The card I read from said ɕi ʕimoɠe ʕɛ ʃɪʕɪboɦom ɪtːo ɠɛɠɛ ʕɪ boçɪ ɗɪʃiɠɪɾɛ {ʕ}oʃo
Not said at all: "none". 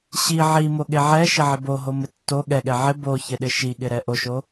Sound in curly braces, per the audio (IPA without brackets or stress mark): ʔ